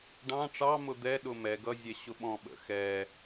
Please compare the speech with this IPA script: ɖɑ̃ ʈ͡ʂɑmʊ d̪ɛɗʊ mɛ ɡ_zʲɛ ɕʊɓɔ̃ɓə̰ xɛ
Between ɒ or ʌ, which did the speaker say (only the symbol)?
ʌ